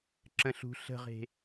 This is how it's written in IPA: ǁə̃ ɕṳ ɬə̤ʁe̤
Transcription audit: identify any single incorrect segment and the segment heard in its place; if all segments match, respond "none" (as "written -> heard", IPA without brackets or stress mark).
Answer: ɕ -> ɬ